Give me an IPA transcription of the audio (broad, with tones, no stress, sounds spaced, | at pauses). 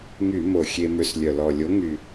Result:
ŋ y˧˩˧ m o˨˩ xʲ e˧ m ø˧ s lʲ œ˨˩ l ɔ˨˩ lʲ o˨˥ ŋ y˨˩